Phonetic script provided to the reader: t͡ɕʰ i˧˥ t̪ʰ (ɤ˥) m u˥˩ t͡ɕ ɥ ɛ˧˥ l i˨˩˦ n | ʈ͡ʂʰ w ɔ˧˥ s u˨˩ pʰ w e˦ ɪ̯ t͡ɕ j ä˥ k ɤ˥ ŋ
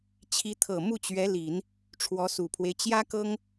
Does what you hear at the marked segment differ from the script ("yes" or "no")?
yes